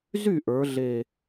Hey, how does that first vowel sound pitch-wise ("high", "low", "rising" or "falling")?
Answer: falling